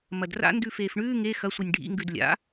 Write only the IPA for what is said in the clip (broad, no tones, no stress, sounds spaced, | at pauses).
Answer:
m ɐ d r a̰ n d ʉ f eː f ɳ ʉː ŋ e x ɐ sʷ e nʲ ɖʱ ḭ ŋ ɡ ʉ d lʲ a̰